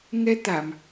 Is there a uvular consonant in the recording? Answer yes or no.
no